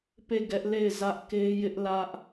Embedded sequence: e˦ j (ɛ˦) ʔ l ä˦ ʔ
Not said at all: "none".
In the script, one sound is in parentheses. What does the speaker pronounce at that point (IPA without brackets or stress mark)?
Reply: ɪ˦